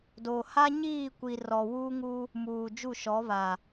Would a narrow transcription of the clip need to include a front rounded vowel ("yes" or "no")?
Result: no